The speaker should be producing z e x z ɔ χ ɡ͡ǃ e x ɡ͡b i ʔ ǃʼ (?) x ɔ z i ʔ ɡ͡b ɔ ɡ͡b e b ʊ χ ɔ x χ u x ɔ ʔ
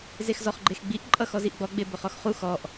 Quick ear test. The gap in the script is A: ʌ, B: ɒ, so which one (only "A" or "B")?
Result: A